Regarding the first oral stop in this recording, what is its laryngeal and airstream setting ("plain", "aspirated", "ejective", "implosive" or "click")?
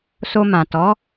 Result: plain